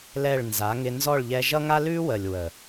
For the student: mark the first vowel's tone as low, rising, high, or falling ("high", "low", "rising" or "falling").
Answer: falling